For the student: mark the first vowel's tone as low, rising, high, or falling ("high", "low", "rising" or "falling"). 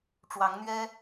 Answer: rising